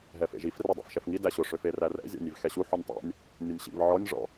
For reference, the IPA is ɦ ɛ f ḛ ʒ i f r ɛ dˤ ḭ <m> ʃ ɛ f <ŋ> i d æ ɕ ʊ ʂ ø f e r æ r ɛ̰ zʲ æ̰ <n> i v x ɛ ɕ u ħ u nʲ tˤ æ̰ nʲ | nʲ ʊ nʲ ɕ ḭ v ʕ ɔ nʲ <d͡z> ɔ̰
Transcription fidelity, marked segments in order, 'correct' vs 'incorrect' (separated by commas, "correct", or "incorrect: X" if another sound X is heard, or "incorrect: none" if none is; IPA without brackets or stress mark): incorrect: f, correct, incorrect: nʲ, incorrect: ʐ